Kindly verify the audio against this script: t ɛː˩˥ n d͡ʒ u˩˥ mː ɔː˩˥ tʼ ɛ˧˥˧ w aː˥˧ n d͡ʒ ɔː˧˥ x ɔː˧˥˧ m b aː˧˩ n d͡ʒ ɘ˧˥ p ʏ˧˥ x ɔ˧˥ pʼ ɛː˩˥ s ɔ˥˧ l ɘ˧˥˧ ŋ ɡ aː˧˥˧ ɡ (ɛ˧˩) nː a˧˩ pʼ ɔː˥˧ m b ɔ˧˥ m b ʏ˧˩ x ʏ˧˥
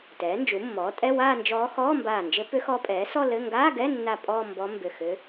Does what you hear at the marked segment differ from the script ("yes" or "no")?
yes